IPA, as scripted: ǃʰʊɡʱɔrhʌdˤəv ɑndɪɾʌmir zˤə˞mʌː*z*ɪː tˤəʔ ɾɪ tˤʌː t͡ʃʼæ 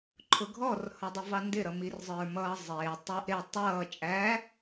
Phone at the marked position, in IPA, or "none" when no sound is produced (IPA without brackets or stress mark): zˤ